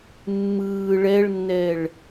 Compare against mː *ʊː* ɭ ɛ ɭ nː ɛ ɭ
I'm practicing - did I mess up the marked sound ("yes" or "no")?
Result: yes